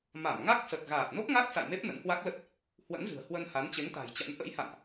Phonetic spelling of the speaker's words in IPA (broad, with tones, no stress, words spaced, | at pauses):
ma˧˩mŋa˦˥k̚sə˨˩t̚ ɣaː˨˩t̚no˦˥k̚ŋa˦˥k̚ sa̰˧˨jme˦˥p̚ nə̰˧˥nhwa˦˥k̚lə˦˥t̚ | hwə̰˧˥nzɨ̤˨˩ə̯ hwə˧nha˨˦n t͡ɕe˨˦ŋt̪a̤˨˩jt͡ɕa̰˧˥n ʔə̰˧˥jha̰˧˨nʔ